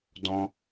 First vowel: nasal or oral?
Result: nasal